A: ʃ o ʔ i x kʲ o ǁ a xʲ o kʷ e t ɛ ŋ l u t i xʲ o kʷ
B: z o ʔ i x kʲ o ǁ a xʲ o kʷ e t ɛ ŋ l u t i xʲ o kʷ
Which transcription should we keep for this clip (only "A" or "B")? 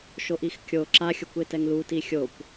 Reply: A